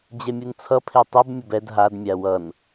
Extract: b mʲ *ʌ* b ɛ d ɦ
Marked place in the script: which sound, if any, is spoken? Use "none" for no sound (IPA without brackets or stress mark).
ʌ